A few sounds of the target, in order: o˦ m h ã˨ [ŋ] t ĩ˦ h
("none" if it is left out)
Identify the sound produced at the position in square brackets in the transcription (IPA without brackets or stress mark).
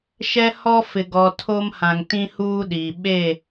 ŋ